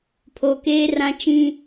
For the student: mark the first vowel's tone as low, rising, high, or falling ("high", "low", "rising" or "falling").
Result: low